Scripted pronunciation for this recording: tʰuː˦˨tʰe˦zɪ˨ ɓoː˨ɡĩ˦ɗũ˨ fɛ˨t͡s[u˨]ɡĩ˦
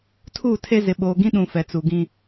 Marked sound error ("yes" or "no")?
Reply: no